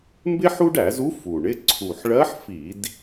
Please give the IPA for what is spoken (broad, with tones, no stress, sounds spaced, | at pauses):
m b ɪ˥ ħ u˥ ɖ æ˧˩˧ z u˧˥ f u˨˩ ɳ ɪ˧˥˧ ǀʰ u˨˩ ħ ɭ ɜ˧˥ ħ f i˧˩˧ d